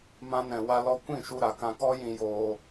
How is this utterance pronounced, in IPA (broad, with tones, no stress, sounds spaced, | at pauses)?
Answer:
m ã˧ n ɛ̃˨ w a˧ l ɔ˧ kʷ ĩ˦˨ ʃ u˧ ɾ a˨ k ã˧ k ɔ˦ j ĩ˧ j oː˧